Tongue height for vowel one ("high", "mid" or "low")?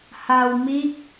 low